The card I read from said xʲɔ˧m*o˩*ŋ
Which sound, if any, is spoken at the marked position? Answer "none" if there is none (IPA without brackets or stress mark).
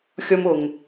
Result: o˩